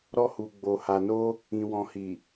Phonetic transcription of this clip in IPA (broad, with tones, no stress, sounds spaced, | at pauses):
ɾ ɔ˧ h u˨ ɡ͡b o˨ h a˨ n o˧ | ĩ˨ w ɔ̃˨ h i˨